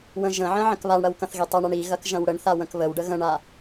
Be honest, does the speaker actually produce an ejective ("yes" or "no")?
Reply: no